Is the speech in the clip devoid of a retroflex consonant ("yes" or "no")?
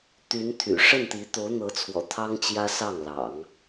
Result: no